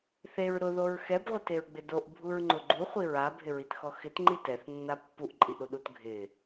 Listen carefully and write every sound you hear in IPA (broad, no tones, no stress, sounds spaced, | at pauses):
θ e ɹ ɾ ʊ ð o ɹ x ɛ b ʁʷ e t e ɹ ɡ͡b ɪ d o ʔ bʱ u ɹ ŋ͡ǃ ʊ ɡ͡ǃ u χʷ i ɹ a bʱ ɪ ɹ i t x ɔ x ɪ t ŋ͡ǃ i t ɛ θ nː a pː u ʔ ǃʼ i ʔ ɾ u ɗ u t ɡʱ ɪ